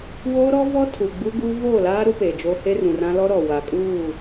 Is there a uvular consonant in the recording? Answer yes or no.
no